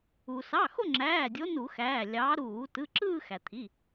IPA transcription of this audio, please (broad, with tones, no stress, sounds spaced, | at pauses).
u˩ s ɑ˩˧˩ x o˥˧ ŋ͡ǁ æː˩˧˩ dʲ o˨˦ n u˧˩˧ x æː˩˧˩ lʲ ɑ˨˦ ɾ uː˧˩˧ t ɯ˩˧˩ ǁ ɯː˥˧ x æ˩ t̪ʰ i˩˧˩